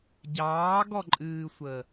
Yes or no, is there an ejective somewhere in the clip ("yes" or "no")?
yes